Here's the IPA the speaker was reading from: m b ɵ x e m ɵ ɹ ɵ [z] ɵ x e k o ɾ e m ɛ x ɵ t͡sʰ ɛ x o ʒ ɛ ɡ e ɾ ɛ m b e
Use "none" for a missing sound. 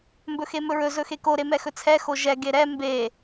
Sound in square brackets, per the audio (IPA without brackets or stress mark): z